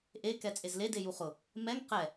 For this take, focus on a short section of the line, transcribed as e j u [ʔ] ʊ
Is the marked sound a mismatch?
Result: yes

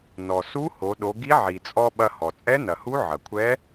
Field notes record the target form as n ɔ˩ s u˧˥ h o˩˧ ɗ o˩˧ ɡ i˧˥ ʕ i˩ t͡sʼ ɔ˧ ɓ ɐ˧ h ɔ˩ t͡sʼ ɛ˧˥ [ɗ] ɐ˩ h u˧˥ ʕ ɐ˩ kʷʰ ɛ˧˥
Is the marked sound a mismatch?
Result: yes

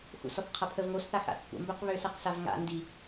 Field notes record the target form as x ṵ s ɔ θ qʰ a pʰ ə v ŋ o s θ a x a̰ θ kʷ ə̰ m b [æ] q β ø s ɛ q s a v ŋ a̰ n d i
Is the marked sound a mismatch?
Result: yes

